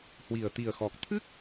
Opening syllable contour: low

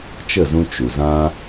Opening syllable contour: falling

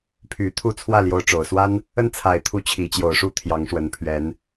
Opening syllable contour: low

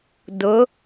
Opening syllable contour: rising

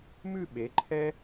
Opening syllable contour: falling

